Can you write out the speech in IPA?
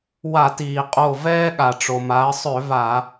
wa˧˩˧tiː˩qʼo˧˩ vɛː˦ɠa˩ʈ͡ʂo˩ ma˩˧ə̯sˤø˧˩˧ va˧˩˧

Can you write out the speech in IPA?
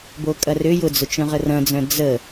bokʼɐrʏ jʊd͡zʊt͡ʃœ̃ʁə rɐ̃d͡zœ̃ d͡zə

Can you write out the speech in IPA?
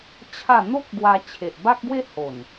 t͡ɕʰa˥˧ n̪o˦k̚ ɡwa˧t͡ɕʰe˨ʔ ba˦k̚ɡwe˦ ho˨˩n

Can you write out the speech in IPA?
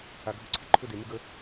a˧ɡʱʊ˦ǀʰɪ˦ ǃʰʊ˦de˨ mɪ˦ɡə˦

